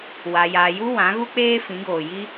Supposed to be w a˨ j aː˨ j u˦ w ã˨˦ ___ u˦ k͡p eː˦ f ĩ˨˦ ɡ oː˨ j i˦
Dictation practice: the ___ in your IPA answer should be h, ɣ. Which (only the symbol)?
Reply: ɣ